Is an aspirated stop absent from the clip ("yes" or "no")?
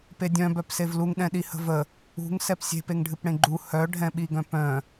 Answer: yes